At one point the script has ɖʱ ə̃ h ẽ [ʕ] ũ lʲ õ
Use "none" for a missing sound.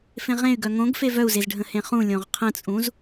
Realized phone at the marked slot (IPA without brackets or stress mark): χ